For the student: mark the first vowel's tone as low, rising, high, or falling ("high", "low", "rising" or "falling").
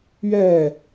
falling